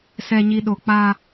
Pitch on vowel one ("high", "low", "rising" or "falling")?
low